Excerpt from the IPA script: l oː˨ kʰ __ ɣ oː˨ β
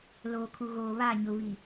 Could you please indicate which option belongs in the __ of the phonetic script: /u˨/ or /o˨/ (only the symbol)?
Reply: u˨